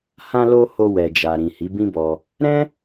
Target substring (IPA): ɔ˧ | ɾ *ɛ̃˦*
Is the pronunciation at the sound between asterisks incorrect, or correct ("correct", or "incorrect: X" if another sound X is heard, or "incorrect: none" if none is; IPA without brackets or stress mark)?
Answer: correct